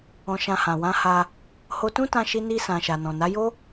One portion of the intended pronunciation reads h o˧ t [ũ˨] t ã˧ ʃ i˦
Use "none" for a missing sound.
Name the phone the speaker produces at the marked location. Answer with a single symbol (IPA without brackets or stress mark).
ũ˦